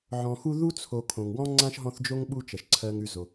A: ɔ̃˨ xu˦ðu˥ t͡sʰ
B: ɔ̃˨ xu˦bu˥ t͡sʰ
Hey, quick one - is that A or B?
A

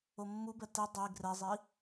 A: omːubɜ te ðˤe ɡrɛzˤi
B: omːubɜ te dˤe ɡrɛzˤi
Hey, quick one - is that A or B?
B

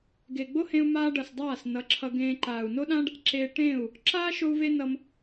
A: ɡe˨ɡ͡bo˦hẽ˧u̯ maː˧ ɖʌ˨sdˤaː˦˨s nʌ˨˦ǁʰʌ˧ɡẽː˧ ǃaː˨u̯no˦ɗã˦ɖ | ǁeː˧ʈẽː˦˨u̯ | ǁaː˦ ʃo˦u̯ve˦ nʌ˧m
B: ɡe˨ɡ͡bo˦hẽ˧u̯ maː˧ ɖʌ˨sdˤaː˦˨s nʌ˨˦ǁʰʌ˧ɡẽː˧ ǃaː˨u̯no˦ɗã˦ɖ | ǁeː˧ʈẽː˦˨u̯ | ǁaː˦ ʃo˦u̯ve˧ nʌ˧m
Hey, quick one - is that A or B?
A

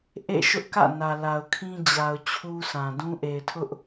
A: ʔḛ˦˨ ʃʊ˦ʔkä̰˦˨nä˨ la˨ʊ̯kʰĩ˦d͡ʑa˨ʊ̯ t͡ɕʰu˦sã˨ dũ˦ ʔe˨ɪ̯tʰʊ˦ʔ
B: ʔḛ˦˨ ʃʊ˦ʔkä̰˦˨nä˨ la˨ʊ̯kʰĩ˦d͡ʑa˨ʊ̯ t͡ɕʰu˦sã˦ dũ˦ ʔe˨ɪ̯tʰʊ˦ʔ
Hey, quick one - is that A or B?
A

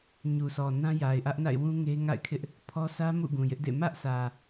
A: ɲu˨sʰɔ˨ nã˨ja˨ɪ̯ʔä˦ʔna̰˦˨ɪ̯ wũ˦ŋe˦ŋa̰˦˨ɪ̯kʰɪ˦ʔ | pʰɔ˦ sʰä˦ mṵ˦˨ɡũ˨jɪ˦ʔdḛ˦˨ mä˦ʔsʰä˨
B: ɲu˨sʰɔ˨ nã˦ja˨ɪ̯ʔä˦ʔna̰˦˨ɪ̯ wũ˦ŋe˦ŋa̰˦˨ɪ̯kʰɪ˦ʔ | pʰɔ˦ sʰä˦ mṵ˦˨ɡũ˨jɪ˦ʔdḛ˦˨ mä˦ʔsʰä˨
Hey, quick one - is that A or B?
B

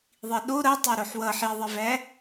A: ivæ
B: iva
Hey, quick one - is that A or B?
A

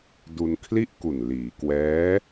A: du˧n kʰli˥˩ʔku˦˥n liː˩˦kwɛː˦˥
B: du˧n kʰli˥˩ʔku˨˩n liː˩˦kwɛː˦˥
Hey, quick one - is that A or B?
B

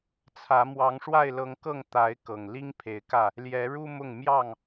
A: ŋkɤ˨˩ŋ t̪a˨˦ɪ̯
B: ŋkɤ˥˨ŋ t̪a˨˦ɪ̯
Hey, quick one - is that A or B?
B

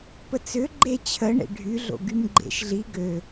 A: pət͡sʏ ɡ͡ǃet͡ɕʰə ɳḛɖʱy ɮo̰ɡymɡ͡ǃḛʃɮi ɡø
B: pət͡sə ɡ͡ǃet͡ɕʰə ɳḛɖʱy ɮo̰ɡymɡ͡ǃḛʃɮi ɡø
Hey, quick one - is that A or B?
A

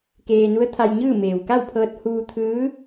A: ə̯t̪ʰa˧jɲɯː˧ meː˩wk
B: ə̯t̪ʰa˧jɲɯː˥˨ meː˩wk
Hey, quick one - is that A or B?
B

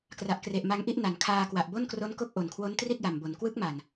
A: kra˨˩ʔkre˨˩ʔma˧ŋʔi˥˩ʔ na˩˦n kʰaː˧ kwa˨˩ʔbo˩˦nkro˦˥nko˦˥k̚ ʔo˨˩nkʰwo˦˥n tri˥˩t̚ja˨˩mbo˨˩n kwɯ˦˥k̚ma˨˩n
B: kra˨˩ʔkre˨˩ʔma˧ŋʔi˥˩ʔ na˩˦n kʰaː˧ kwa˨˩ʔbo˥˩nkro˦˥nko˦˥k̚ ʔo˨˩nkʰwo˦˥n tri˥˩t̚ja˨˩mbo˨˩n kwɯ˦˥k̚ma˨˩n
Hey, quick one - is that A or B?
B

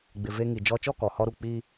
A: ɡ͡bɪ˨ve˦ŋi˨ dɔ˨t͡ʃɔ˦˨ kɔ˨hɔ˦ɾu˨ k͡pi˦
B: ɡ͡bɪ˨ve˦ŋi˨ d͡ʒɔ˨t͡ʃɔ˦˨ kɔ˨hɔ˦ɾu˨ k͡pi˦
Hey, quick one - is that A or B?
B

